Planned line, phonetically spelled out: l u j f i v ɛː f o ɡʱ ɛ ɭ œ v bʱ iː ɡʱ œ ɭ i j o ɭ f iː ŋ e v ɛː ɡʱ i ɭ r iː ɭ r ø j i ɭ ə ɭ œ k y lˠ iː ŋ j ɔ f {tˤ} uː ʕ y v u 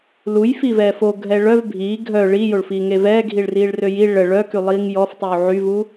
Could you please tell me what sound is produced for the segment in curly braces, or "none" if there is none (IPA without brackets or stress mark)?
tˤ